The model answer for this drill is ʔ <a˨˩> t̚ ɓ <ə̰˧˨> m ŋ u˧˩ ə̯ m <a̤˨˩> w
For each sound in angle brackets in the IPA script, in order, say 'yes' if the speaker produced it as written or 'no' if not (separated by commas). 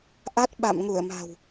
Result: no, no, yes